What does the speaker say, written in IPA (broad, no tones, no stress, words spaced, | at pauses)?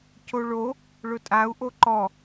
coɭo | ɭʊtʼau̯ ʔoǃɔ